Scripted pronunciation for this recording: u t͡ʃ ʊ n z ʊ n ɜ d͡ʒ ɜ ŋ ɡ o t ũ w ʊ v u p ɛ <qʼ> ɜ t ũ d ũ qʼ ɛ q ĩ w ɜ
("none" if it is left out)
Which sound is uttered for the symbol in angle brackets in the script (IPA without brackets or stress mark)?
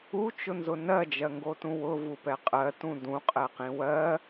qʼ